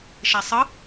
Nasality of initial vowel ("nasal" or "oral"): oral